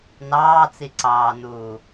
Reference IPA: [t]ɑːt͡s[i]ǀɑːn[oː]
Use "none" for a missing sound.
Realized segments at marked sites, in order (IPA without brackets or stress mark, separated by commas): n, i, uː